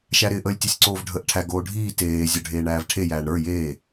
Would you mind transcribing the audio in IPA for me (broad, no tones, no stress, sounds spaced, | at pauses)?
ʃ æ ɾ ɪː ʔ əː lʲ tʲ ɘ sʲ ǀ oː v ɖʱ əː ʔ ʈʰ æ ɡ oː ɖʱ iː t eː zʲ ə˞ ɖʱ eː ɳ æː v ʈʰ e j æː ɳ ɾ ə˞ j eː